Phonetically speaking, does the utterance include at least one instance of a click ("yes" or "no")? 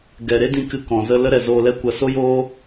no